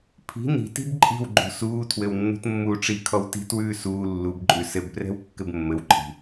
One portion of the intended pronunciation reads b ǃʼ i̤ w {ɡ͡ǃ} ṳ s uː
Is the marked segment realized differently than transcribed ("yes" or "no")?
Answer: no